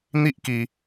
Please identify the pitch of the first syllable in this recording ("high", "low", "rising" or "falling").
high